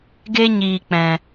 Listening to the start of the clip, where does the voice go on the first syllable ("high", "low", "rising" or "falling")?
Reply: high